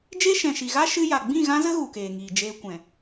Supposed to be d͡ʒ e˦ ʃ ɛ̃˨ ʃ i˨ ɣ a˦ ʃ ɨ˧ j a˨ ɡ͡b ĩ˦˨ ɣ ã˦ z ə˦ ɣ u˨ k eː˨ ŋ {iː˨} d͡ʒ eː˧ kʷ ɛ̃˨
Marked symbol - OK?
yes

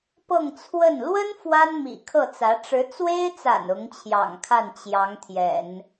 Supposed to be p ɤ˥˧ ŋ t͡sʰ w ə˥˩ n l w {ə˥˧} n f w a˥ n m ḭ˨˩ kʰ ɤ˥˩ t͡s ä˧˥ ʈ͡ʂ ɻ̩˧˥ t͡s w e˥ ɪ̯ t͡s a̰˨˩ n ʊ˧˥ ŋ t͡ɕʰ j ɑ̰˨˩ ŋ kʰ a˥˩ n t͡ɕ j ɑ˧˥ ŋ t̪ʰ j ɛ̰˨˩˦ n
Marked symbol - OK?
no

